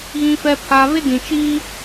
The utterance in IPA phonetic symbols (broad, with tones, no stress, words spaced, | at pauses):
ɣĩ˦fɛ˦pʰa˦ βɪ˦dĩ˨t͡ʃiː˦